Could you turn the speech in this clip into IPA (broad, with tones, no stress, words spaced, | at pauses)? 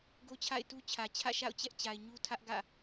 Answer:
ɡo˦t͡ɕʰa̰˦˨ɪ̯tu˦t͡ɕʰä˨ t͡ɕʰä̰˦˨ʃa̰˦˨ʊ̯t͡ɕɛ˦ʔt͡ɕa˨ɪ̯ ɲu˦ tʰä˦ʔɡä̰˦˨